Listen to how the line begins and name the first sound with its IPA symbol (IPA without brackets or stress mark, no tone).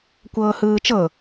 kʷ